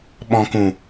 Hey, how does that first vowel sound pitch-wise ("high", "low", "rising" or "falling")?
low